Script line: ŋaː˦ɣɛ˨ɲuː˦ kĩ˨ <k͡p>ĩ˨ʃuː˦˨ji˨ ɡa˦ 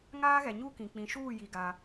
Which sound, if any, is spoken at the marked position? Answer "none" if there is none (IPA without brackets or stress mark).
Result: k͡p